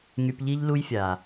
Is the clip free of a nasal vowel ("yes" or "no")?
yes